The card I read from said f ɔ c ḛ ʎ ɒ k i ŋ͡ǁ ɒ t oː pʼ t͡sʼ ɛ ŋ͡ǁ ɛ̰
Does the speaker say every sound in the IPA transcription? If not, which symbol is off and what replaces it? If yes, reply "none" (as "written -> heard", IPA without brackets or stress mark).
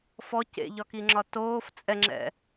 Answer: pʼ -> f